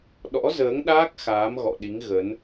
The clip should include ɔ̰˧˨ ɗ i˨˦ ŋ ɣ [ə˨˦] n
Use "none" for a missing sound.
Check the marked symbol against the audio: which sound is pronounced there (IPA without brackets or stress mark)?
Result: ə˨˦